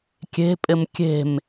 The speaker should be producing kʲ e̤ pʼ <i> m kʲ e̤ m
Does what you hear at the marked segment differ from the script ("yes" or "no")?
yes